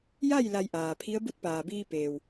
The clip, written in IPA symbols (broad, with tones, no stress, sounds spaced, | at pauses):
j a˥˨ j l a˧ j ʔ aː˩ pʰ i˧˥ ə̯ b u˧˥ t̚ p aː˩ b iː˧ p eː˩ w